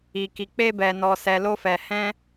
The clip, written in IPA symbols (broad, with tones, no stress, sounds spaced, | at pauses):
i˨ k i˨ k͡p e˧ b ɛ˨ n ɔ˨ s ɛ˨ l o˧ f ɛ˨ h ɛ̃˧